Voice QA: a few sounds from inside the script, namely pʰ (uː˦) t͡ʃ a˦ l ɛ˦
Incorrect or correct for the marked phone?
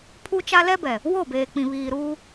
incorrect: u˦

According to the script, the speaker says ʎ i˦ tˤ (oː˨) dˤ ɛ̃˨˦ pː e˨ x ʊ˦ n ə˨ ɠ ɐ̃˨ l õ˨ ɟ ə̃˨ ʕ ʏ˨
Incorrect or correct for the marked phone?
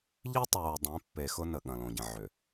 correct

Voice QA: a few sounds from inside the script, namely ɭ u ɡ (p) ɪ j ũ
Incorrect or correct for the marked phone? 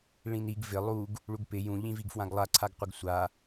correct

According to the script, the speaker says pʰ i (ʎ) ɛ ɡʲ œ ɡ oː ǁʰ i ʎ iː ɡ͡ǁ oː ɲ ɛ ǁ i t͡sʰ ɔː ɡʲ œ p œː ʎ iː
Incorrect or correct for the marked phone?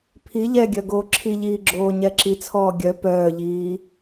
correct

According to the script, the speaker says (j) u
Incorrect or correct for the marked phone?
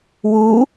incorrect: w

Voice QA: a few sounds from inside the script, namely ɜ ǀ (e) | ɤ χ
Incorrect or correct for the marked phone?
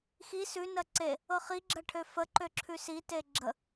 correct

